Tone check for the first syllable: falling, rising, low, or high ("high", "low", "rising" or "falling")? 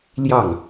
falling